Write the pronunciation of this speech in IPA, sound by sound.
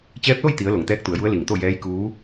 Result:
t͡ɕ ɛː˧˥ p̚ l o˥˨ j t̪ i˩˧ ə̯ l o˩ ŋ t̪ ɛː˧˥ k̚ t̪ u˩˧ ə̯ j u˧˥ ə̯ l i˧˩ ŋ t̪ o˥˨ j ɛː˧˥ j k uː˧˥

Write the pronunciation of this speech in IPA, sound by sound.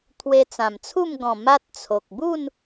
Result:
t̪ʰ w e˧ t͡s ã˨˩ m t͡sʰ u˥˧ m ɡ ɔ̃˨˩ m a˦ t̚ t͡sʰ o˨ k̚ b u˥˧ n

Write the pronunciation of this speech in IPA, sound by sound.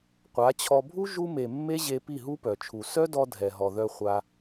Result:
qʷ a˨˦ t͡ɕʰ ɔ˧ bʱ u˦ ʒ u˧ m e˨ mː e˦ ʑ e˧ p i˦˨ ɦ u˦ p œ˨ t͡ʃʰ u˨ s œ˦ d ɔ˧ dʱ ɛ˨ ɦ ɔ˨ ð œ˧ χʷ a˧

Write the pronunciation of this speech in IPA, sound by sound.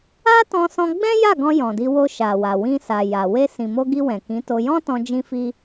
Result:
a˦ t ɔ̃˧ s ɔ̃˧ ɡ͡b ɛ̃˦ j a˦˨ ɡ ɔ̃˧ j ɔ̃˨ d i˧ w o˧ ʃ a˨ w a˨ w ĩ˧ s a˨ j a˨ w e˧ s ĩ˨ m o˧ ɡ i˧ w ɛ̃˨ k ĩ˨˦ t o˧ j ɔ̃˦ t ɔ̃˧ d͡ʒ ĩ˦ f i˦

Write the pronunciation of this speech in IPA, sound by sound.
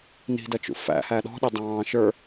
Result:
n i̤ d ʌ t͡ʃ ṵ f æ̰ h æ ɗ ɔ̤ ɗ ɪ dˤ ɑ̃ː ʃ ə˞

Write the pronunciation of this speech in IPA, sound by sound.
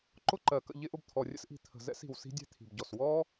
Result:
ǃ ʊ˦ ǃ ɜ˨ k ə̰˦˨ ʎ ɪ˦ ʔ ʊ˧ b t̪ʰ ɔ˨ rʲ ə̰˦ s ʔ i̤˧ t̪ʰ ə̤˨ z ɛ̰˦ s i̤˨ w s i̤˦ dʲ ɛ̤˦ t̪ʰ i̤˨ b ɟ ɔ˨ s w ɔ˦

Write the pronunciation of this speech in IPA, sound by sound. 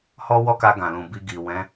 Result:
h ɔ˦ w ɔ˦ k a˧ ɡ ã˨ l ũ˨ b i˧ ɡ i˨ w ɛ̃˨˦

